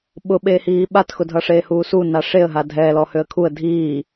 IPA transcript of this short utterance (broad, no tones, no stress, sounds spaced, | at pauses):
ɓ ʊ ɓ eː h iː ɓ a t x ʊ dʱ ʌ ʂ eː h uː s u n a ʂ e ə̯ ɦ a dʱ ɛː l ɔ h ø ə̯ kʰ u ə̯ dʱ iː